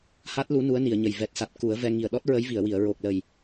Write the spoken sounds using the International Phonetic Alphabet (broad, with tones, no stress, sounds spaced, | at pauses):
h a˦˥ t̚ l u˧˥ n u˧˥ ə̯ n i˨˩˨ ə̯ ɲ ə˨˩ j v ɛ˨˩ t̚ s a˨˩ t̚ k u˨˩˦ ə̯ v ɛ˧ ŋ i˨˩ ə̯ ɗ ɔ˦˥ t̚ ɹ ə˧˥ j v i˨˩˨ ə̯ w i˨˩˨ ə̯ ɹ o˨˩ k̚ l ə˨˩ j